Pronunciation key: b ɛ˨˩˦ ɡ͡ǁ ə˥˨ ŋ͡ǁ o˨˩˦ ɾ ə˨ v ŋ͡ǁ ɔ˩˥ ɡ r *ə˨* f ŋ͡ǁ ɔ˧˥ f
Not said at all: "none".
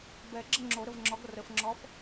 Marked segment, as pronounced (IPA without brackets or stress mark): ə˨